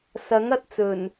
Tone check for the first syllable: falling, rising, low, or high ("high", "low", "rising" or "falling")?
rising